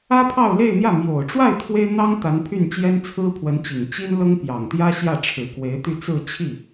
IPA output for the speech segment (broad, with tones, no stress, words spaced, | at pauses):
ä˥pʰɑ˥˧ʊ̯le˥˧ɪ̯n̪jä˥˩ mjo˨˩ʊ̯ʈ͡ʂwa˥˩ɪ̯ t̪ʰwe˥ɪ̯n̪ɑ˥ŋ t̪a˧˥npʰy˥˩nt͡ɕjɛ˥n t͡sʰɹ̩˥pʰwə˧˥nt͡ɕi˨˩ŋ t͡ɕi˥nlɤ˥ŋ pjɑ˨˩ŋt̪jä˥ɕjä˥˩ʈ͡ʂʰɻ̩˨˩ kwe˧˥ɪ̯t̪y˥˧t͡sɹ̩˥˧ t͡ɕʰi˥˩